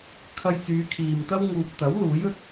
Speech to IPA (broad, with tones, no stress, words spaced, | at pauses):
kʰɐ˧jt͡syː˨˧kʰiː˨mt̪ɐ˥w ŋuː˨p̚t̪ɐ˨˥w luː˨˥jɵ˥t̚